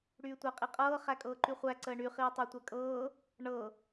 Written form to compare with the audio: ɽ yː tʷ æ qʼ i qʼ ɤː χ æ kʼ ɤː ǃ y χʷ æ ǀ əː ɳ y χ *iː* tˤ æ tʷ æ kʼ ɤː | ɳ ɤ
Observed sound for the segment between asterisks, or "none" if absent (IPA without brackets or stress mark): iː